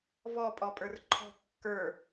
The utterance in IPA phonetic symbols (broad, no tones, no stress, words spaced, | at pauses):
vɔpʼɔ pʼə˞rǃʰɔ̤ kːə˞